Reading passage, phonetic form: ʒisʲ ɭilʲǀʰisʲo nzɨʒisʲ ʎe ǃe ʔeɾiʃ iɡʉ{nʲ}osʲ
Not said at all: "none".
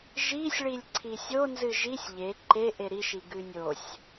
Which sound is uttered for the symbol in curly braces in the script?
nʲ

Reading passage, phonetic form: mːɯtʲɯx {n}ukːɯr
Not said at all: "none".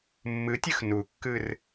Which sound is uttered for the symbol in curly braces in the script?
n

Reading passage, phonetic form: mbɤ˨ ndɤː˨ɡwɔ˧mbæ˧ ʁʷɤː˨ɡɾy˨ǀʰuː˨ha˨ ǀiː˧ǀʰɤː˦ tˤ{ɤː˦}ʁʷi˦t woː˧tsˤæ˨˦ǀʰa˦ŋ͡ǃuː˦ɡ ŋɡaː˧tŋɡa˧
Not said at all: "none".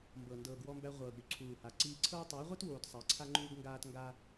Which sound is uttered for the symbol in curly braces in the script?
ɤː˨˦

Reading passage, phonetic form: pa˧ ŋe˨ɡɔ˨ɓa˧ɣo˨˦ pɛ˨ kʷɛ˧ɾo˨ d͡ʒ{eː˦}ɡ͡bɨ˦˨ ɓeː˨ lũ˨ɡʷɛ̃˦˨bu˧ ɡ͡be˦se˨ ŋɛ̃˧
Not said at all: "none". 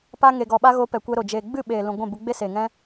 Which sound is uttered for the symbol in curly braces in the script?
eː˨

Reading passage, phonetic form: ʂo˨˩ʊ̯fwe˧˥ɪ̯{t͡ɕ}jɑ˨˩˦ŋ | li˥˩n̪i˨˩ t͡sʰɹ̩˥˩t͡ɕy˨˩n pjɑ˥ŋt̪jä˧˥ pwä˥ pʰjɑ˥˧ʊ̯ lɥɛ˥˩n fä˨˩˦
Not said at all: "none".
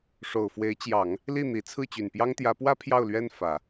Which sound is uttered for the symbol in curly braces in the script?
t͡ɕ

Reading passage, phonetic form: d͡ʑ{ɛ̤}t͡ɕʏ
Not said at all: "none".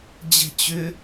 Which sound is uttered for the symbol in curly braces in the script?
ɛ̤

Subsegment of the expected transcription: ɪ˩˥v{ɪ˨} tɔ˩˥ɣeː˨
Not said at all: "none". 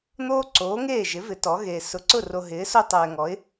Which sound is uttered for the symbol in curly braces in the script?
ɪ˩˥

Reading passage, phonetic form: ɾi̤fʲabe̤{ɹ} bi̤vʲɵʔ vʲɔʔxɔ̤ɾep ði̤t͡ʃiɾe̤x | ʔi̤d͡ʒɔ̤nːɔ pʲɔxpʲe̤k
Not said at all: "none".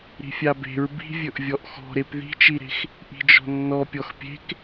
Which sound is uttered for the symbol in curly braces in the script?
ɹ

